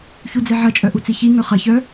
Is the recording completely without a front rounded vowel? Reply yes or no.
no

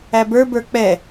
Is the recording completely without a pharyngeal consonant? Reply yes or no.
yes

